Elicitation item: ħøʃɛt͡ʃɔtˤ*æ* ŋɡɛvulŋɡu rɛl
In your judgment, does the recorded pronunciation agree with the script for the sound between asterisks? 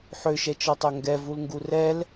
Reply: no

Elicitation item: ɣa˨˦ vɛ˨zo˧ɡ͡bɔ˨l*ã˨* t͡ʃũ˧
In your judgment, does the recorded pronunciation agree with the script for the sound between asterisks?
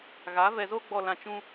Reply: yes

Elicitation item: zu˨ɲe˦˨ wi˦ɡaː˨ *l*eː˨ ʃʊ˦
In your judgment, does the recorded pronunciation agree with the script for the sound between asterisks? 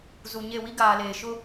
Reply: yes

